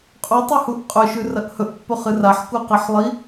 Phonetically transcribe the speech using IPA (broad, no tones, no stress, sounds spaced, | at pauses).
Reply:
qʼ u tˤ ɨ h u ʔ qʼ ɵ ʃ ʉ r ɐ ʔ h ɵ ʔ pː ɵ χ ɨ r a ħ k u q ɐ ħ lˠ i